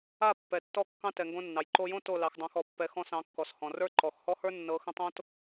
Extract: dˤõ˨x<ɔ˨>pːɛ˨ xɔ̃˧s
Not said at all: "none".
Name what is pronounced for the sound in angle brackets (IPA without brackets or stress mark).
ɔ˨